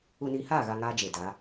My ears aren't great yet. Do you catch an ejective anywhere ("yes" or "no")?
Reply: no